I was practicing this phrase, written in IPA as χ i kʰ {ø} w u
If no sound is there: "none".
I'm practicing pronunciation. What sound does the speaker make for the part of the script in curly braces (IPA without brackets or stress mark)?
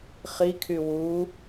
y